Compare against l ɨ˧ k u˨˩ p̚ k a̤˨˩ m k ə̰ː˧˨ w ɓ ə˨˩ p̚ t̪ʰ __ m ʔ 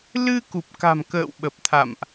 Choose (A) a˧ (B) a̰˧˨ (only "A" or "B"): B